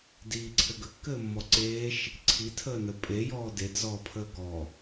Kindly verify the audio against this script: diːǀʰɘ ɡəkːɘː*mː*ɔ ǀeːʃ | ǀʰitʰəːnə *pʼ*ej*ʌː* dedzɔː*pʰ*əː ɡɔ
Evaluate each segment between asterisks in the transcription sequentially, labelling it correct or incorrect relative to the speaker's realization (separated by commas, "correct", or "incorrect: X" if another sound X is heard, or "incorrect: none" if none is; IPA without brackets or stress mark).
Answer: correct, correct, incorrect: ɔː, correct